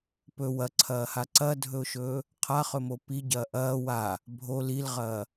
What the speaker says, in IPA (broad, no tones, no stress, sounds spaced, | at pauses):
p ɵ w ɐ ǀʰ ɐː h a ǀ ɐ dʱ ɵ ʊ̯ ʃ ɵː | qʰ a χ ɵ m o p i ɟ ɐː ʔ ɐː w a | bʱ o l i l ʁ ɐː